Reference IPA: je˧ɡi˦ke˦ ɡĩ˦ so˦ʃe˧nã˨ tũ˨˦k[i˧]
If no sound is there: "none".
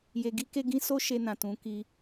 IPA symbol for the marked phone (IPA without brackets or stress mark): i˧